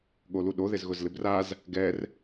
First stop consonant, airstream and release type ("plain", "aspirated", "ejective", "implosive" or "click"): implosive